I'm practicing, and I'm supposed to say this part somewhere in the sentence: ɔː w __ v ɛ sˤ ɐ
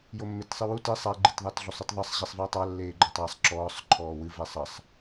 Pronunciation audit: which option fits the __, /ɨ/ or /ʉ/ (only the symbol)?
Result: ɨ